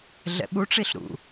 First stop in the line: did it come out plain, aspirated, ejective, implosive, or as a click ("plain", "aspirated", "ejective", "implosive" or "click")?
implosive